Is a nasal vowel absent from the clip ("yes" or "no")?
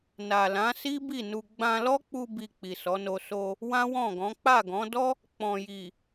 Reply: no